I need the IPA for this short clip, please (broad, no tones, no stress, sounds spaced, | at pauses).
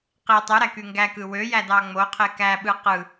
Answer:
q i tˤ y ɾ æ k y ŋ ɡ æ k ɯ w ø j æ d ɑ ŋ͡m o qʰ e k æ ɓ ɯ q ɯ